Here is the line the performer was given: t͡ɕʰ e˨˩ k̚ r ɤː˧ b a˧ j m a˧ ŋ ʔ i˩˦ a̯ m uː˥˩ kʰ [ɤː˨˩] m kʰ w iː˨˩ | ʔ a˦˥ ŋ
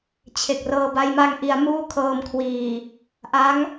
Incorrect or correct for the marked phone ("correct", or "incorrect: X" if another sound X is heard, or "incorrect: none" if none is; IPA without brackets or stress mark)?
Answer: incorrect: ɤː˧